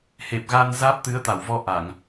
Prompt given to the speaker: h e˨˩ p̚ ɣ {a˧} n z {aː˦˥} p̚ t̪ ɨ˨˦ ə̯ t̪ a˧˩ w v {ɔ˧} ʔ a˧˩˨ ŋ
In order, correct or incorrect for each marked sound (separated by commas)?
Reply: correct, correct, correct